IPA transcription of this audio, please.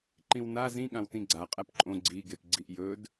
ǃĩwna zĩɠãwtĩ ɡ͡ǀa qʼæpǃʼõ ɡ͡ǀiɡep ɡ͡ǀiʔjɵd

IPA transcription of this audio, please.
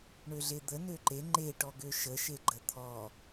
ɳøɮed̪ə nøǃe ŋ͡ǃeʈɔ ɡøʃəʃe ɡ͡ǃət̪ʰɔ

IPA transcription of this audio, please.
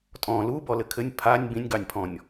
tʼɔ̃ lu bɔlɘkʰɘnʲ pʰanʲ bĩnʲɡɑnʲpʰɔ̃nʲ

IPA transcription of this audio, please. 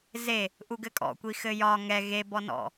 ze | ʔuɡɘkʼɔ̰kʷi xɘjɒ ŋɛ ɣe bɔnɔ̰

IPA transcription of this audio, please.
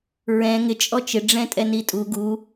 ɹɛ̃ ŋɪ t͡ʃʼɔt͡ʃɪ ɖ͡ʐɛ̃tʼɛnitʼu ɡu

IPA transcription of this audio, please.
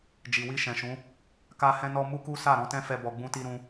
d͡ʒi˨wi˧ʃɛ̃˨ʃũ˨˦ | ka˧hɛ̃˧nɔ˧ mu˦ku˦ sa˦˨ ɾɔ̃˧tɛ̃˦fɛ˧ bɔ˧ɡ͡bũ˦ti˦ ɾũ˧

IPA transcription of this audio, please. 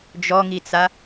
d͡ʒɔŋit͡sa

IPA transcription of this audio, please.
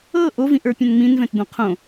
ɤ ʔovĩʔə˞pʲɛ̃n ŋ͡mĩnvɛ̃td̪õ qʰõ

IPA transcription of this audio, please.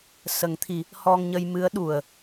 sə˨˩˦ŋt̪ʰi˨˩˦ | hɔ˧ŋɲə˧j mɨ˧˥ə̯ ɗu˨˩ə̯

